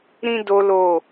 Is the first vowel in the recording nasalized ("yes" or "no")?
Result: yes